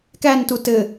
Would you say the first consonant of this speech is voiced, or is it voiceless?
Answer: voiceless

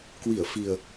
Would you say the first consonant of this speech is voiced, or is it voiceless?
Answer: voiceless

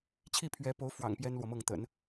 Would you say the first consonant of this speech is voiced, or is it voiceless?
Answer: voiceless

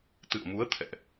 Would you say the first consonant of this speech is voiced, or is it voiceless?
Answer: voiceless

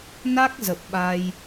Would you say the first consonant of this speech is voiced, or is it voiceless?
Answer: voiced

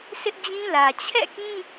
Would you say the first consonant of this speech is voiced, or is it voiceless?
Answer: voiceless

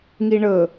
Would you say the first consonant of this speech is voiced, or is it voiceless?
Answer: voiced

